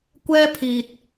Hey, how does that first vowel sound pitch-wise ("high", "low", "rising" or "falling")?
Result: high